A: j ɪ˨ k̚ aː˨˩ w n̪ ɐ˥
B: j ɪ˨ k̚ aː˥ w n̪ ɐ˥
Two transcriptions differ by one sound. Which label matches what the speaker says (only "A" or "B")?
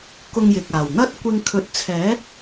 A